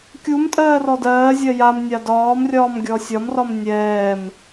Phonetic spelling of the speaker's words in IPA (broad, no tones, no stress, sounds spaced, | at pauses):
kʲ u m tʼ ɜː r ɔ d ɜː zʲ ɜ j a m nʲ a d ɒː m rʲ ɒː m ɡʲ ɔ sʲ ɒ m r ɒ m nʲ ɛː m